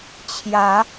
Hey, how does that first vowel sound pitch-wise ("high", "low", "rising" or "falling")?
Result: rising